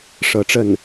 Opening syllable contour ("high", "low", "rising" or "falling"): rising